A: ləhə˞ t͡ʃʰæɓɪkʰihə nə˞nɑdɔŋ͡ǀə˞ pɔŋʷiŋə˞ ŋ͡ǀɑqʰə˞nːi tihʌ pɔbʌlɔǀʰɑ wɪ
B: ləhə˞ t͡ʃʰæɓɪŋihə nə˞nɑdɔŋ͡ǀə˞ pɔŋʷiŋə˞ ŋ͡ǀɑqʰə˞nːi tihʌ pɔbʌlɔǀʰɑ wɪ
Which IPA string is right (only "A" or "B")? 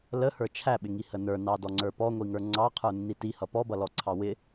B